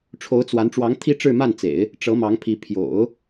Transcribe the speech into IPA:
ʈ͡ʂʰo˧˥ʊ̯ t͡swa˧˥n ʈ͡ʂwɑ˧˥ŋt̪ʰi˥ ʈ͡ʂɻ̩˥˧ma˥˩nt͡sḛ˨˩˦ɪ̯ | ʈ͡ʂɤ˧˥mɑ˧˥ŋpʰi˧˥ pʰjo̰˨˩˦ʊ̯

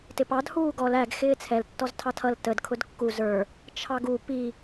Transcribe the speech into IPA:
tɪpɑd huːɡɔl æɡ xɪːt͡sʰɛl tːɔztʰɑtʰʌl təd kʰʊdkːuz ə˞ | t͡ʃʰɑɡu pi

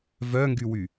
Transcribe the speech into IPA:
vœŋɡywy

